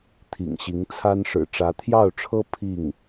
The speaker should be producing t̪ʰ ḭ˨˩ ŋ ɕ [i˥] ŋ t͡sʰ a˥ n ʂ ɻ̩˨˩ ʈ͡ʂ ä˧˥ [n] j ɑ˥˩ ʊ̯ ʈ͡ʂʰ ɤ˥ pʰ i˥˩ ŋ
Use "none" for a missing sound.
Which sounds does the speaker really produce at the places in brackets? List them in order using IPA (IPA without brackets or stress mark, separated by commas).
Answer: i˧˥, t̪ʰ